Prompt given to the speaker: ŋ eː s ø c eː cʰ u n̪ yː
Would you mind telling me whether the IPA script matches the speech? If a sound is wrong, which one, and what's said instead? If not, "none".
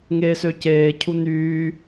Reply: none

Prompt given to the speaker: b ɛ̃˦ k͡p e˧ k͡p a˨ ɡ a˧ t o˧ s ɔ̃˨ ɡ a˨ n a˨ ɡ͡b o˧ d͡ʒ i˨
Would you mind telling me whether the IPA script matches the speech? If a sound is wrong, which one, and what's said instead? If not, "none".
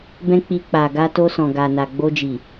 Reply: e˧ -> i˧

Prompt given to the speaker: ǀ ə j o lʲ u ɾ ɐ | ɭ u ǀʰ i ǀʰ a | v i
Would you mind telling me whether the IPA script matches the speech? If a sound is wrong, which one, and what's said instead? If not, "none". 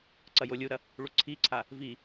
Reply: ə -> ɐ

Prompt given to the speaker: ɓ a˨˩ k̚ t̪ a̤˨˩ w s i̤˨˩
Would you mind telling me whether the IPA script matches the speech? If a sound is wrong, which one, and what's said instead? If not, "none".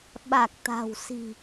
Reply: none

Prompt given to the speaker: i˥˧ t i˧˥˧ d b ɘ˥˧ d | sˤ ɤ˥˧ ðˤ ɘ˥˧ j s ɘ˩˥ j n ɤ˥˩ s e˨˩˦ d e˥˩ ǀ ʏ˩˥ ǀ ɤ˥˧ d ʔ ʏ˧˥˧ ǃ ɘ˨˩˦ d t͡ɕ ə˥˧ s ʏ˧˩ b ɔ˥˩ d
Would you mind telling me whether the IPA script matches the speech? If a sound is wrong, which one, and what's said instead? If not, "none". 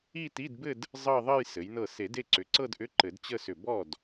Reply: sˤ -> zˤ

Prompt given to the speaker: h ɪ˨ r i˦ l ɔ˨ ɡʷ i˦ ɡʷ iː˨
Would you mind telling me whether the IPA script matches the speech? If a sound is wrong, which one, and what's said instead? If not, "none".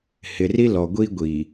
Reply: none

